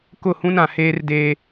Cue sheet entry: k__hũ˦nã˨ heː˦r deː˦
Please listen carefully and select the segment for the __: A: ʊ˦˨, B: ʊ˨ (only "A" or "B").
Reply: A